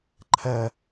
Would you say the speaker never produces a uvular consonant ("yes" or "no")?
yes